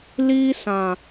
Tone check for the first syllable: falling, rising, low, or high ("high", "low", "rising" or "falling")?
high